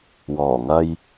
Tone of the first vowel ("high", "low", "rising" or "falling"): low